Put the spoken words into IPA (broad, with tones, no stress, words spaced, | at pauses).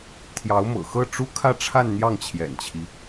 t̪ʰjɑ˧˥ʊ̯mɤ̰˨˩xɤ˥˩ ʈ͡ʂu˥kʰä˥˧ʈ͡ʂʰa˥˧n n̪jɑ˥˩ŋt͡ɕʰjɛ̰˨˩nt͡ɕʰi˦